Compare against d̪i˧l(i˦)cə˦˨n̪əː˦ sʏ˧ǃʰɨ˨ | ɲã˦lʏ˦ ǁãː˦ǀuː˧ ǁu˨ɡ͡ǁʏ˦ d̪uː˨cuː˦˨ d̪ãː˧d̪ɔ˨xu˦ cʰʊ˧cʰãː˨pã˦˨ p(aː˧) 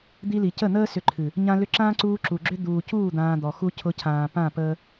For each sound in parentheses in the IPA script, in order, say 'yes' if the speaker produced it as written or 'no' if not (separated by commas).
no, no